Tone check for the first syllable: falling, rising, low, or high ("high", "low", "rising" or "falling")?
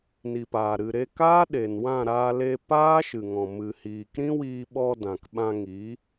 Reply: low